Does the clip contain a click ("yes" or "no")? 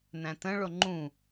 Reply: yes